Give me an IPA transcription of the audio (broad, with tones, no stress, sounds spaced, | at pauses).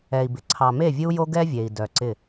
ɛ˨ i̯ b ɪ˨ ǀʰ ɑ˨ m e˦˨ vʲ ɨ˦ u̯ j o˦ ɡ ɛ˦ vʲ e˨ i̯ d œ˨ ǀ ɪ˦˨